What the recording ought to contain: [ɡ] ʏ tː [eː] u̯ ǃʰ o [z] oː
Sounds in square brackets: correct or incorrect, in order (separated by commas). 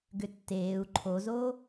correct, correct, correct